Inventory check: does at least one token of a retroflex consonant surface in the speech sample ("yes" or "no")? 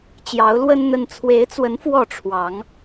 yes